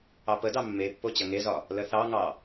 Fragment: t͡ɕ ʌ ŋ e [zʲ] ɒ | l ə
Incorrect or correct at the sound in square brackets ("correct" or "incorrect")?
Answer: incorrect